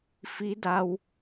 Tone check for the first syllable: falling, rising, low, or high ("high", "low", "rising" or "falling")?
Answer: rising